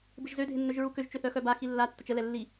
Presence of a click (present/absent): absent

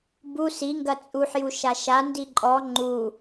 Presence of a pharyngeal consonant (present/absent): present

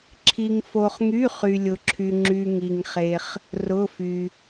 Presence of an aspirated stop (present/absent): present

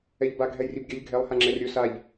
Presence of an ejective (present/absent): absent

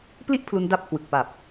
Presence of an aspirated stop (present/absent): present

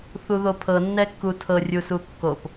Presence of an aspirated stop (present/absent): present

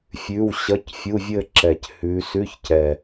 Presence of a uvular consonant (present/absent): absent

